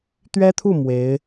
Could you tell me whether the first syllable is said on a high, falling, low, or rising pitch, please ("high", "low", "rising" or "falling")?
high